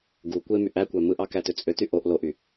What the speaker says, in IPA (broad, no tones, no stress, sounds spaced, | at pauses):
ɡ u kʷ e m y ʔ æ kʷ æ m ɯ ʔ ɑ k æ t ø t͡sʼ ø t y ʔ o ʔ l o ʔ y